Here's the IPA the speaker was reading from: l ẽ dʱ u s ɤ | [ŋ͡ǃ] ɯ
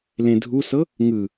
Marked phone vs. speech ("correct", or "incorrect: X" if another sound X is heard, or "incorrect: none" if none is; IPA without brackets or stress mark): incorrect: ŋ